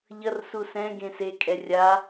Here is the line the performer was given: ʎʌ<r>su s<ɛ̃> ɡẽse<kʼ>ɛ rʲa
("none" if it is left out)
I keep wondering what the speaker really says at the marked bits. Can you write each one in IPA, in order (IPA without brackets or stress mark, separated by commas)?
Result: r, ɛ̃, kʼ